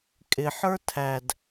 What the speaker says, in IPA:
kʼ ɪ ħ ə˞ tʰ æ d

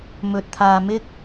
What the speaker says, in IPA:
m ɵ˨ t̚ t̪ʰ aː˨ m ɪ˥ k̚

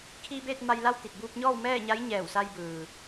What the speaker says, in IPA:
kʰ iː˧ b eː˥˨ t̚ m a˧ j l a˥˨ w t̪ i˧˩ t̚ b uː˧ p̚ ɲ ɔː˥˨ w m ɛː˥˨ ɲ a˧˥ j ɲ ɛː˧˩ w s a˧ j b ɯː˩

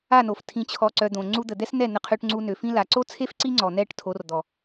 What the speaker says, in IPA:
a˦˨ n o˨ f tʰ ĩ˨ t͡ɕʰ ɔ˨ ǀ œ˨ d̪ õ˨ ŋ͡ǀ u˧ d̪ ə˨ d̪ ɛ˦ s n ɛ˦˨ n̪ ə˧ qʰ ø˧ ʈ ŋ͡ǀ u˧ n ø˨ f ĩ˧ l a˨ ǀ o˦ t͡sʰ e˦ f ǀ i˦ ŋ͡ǀ ɔ˨ n̪ ɛ˦˨ ʈ tʰ o˨˦ r d̪ ɔ˨

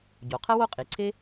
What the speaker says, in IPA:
ɟ o˩ qʰ ɐ˥ w o˥ qʼ i˩ ǀʰ e˥

